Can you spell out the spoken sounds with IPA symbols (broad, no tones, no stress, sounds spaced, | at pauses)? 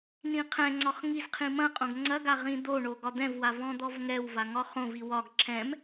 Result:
n ĩ qʰ ɛ̃ ŋ͡ǀ ɒ χ ŋ i z qʰ ĩ m ɐ̃ qʼ õ ɡ ŋ͡ǀ ɐ ɡ a ʁ ĩ d̪ o ɳ o ɡ ɒ d̪ ɛ̃ v w a v ɔ̃ d̪ ɔ v ŋ ɛ w v a ŋ ɒ χ õ v i w ɒ ɡ ǁʰ ɛ̃ m